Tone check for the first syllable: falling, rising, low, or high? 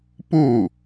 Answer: falling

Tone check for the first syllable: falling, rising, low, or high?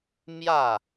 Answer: falling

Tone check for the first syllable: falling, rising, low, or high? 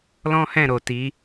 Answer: high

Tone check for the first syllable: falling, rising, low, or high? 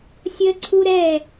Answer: high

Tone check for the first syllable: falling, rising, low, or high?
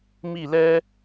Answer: falling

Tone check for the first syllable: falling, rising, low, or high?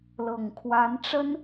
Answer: low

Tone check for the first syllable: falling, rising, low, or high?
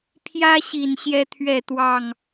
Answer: high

